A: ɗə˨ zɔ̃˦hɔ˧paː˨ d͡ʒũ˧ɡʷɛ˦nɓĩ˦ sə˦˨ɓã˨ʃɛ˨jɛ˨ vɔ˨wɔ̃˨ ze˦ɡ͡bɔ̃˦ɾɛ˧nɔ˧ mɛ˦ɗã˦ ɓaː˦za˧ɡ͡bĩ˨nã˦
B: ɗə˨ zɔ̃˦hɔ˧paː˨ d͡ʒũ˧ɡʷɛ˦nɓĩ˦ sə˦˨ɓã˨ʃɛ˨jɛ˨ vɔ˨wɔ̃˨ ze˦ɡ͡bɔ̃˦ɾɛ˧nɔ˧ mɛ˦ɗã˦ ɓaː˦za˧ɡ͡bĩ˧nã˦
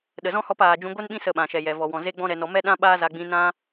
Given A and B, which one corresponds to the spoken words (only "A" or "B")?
B